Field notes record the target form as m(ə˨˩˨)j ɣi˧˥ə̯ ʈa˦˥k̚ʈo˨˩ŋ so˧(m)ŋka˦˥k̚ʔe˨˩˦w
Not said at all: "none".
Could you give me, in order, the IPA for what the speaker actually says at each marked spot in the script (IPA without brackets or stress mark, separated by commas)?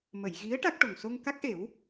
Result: ə˨˩˨, none